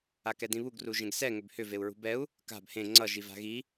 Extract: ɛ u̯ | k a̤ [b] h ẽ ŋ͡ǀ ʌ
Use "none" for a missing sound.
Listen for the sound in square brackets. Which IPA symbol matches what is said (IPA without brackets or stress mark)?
b